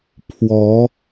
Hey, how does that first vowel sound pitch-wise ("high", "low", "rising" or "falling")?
rising